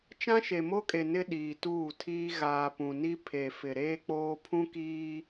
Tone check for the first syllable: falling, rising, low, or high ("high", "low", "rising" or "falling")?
high